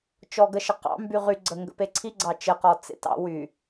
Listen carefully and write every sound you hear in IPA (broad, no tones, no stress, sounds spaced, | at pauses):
t͡ʃ ɔ ɡ ə ʃ ə q ɑ̰ m b y ʁ y ɡ͡ǀ ə ŋ ɡ ə̰ p e ǀʰ i ɡ͡ǀ ɑ t͡ʃ ə q ɔ t͡s ḛ t ɑ̰ w y